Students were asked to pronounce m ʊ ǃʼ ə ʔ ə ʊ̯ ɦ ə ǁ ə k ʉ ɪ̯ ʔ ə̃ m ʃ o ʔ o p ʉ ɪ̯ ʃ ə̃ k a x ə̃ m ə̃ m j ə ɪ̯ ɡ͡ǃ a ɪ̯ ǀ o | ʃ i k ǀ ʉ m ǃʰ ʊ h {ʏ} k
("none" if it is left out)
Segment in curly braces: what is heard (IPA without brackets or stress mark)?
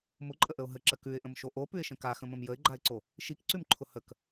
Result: ə